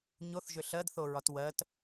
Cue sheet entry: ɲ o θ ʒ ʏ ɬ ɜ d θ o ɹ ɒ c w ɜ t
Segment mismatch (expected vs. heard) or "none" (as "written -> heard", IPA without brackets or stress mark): c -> t